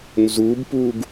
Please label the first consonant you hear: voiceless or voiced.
voiced